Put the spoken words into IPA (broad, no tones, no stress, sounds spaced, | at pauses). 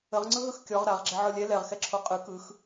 ə ʁ ŋ͡ǀ ɯ ɦ ɯ x kʲ ɔ ʁ ɾ a ʁ ɡ͡ǁ ɛ ʕ ɔ lʲ ɛ l ɛ ʁ x ɛ ǁʰ o qʼ ɯ k ɯ x